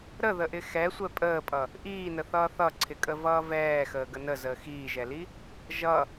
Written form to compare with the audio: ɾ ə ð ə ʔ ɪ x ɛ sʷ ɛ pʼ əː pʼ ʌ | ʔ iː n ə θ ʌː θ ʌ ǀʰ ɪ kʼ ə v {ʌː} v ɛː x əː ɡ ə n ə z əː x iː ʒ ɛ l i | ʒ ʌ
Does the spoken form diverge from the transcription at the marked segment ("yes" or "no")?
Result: no